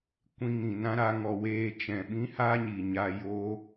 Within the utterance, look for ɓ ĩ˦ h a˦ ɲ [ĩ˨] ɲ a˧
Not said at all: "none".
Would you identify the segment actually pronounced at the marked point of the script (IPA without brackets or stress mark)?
i˨